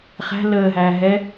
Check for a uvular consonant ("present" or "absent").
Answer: present